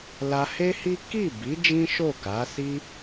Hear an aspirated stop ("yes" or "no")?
no